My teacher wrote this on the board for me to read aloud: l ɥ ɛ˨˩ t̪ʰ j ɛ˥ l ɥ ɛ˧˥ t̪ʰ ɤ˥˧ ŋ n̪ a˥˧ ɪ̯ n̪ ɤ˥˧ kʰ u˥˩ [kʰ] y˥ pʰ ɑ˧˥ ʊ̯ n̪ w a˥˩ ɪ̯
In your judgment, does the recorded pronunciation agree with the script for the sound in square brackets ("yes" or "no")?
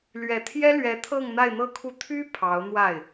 no